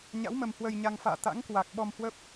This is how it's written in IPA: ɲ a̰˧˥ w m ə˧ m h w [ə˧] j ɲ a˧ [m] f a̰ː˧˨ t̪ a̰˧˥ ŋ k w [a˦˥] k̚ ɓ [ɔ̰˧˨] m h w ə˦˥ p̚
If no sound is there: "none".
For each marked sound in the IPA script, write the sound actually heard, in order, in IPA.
ə˧, ŋ, a˨˩, ɔ˧

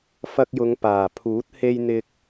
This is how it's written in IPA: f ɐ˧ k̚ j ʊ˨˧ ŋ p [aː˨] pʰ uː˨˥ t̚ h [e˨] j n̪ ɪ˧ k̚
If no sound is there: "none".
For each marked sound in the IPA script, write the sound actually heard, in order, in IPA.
aː˨˩, e˧

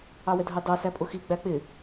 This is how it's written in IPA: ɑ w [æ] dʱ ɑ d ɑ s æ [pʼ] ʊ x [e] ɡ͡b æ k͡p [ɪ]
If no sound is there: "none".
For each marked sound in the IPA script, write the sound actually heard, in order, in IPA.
ɛ, pʼ, i, ɪ

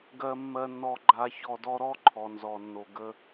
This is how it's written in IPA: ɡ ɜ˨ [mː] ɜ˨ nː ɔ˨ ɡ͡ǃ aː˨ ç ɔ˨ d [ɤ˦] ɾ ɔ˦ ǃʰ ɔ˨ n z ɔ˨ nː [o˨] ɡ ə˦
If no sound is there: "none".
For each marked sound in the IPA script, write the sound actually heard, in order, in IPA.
mː, ɔ˦, o˨

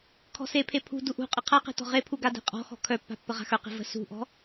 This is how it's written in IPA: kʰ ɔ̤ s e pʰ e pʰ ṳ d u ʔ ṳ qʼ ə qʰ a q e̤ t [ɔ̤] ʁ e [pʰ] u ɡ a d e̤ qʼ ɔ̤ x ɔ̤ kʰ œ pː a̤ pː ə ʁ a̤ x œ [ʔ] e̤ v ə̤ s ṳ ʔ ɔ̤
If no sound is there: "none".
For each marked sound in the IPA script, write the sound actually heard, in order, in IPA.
ɔ̤, pʰ, q

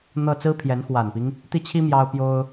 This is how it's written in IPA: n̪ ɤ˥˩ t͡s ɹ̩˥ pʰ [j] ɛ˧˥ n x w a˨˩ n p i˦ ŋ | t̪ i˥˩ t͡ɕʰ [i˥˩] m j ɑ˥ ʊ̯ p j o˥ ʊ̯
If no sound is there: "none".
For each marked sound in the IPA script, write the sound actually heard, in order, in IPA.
j, i˥

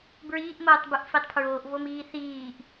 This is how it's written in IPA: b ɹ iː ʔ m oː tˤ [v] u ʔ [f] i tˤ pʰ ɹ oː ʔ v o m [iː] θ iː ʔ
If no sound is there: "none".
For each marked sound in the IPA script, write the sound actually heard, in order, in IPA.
b, f, iː

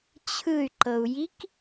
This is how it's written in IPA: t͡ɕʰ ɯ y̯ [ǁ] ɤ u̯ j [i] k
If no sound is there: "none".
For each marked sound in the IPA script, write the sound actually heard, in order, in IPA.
ǃ, i

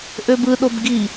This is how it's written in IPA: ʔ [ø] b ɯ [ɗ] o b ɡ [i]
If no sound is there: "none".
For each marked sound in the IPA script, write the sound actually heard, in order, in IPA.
ø, ɗ, i

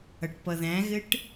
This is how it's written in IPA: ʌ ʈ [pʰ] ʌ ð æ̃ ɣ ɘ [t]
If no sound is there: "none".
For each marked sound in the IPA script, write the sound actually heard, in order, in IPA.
p, ʈ

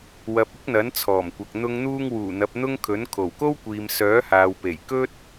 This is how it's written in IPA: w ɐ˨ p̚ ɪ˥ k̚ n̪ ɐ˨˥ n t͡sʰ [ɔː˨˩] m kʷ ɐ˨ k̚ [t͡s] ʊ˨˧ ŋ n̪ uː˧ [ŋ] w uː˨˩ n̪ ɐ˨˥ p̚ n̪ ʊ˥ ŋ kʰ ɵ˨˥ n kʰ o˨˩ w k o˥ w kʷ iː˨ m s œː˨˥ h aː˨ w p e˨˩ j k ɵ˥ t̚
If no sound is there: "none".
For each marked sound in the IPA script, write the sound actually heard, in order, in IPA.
ɔː˨˩, n̪, ŋ

